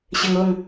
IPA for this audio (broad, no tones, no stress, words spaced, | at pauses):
ɕɘŋoŋ